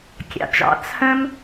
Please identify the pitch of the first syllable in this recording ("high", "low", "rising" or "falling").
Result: low